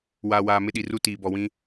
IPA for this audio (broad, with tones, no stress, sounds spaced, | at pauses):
w aː˨ w aː˨ m ɪ˦ ɗ i˨ r u˦ t iː˨ b ɔ˨ w ĩ˦